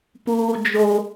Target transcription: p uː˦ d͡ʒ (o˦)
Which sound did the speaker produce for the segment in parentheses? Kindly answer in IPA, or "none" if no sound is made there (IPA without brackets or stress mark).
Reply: o˦